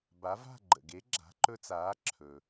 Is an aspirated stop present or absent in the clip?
present